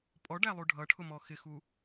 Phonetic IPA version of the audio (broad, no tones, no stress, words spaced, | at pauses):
pʼɔɖælˠu ɖʱʌʈʰʊmɔ xɪxu